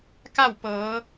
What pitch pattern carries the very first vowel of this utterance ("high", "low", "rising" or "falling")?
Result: falling